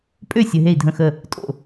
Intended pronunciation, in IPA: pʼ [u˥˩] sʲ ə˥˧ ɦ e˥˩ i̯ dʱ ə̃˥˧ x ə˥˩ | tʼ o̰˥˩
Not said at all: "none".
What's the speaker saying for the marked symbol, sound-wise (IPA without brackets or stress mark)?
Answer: ø˥˩